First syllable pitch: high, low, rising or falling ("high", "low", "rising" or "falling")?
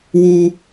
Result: high